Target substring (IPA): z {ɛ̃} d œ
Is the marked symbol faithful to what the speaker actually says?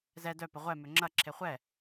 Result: no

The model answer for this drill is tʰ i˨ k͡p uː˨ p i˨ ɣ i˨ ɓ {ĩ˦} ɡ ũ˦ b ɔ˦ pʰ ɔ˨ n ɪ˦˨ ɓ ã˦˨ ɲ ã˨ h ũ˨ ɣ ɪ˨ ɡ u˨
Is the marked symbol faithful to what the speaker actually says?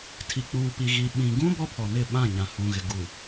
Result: no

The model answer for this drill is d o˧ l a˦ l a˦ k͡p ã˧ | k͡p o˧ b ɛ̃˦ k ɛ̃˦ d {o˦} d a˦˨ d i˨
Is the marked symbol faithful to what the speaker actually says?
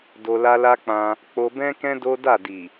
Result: yes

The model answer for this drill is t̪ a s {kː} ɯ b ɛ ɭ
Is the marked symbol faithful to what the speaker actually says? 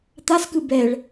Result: no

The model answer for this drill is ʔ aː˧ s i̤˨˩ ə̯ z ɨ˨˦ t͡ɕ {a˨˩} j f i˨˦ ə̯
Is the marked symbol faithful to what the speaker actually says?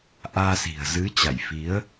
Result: no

